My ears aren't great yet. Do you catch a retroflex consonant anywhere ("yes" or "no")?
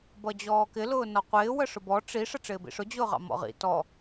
yes